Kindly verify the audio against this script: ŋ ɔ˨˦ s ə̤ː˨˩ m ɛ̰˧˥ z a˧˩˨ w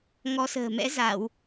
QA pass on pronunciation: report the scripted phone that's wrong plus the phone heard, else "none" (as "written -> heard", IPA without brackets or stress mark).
none